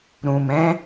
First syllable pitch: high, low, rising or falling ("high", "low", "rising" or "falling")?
low